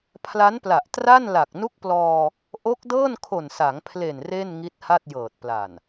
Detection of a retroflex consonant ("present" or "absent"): absent